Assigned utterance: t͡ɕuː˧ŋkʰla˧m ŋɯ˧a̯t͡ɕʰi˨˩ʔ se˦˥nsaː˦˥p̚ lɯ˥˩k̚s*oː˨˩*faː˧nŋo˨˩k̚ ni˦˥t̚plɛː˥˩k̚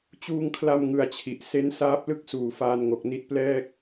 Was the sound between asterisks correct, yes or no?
no